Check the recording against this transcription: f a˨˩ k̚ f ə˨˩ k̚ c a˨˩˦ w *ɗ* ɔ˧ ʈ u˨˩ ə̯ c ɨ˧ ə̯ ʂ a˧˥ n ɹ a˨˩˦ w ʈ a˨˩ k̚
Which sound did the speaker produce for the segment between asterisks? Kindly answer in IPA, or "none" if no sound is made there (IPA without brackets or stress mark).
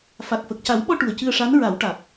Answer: ɓ